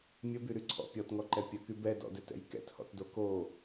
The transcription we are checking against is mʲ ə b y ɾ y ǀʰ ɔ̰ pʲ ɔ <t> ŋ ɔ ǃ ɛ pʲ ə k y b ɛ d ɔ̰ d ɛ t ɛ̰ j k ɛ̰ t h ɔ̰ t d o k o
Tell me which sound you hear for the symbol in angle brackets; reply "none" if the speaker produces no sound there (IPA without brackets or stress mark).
t